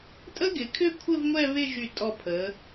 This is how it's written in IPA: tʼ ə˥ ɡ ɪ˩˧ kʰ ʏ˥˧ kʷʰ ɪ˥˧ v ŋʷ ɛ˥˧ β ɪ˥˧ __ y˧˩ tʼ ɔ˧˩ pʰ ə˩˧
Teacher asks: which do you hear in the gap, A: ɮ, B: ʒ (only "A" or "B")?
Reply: B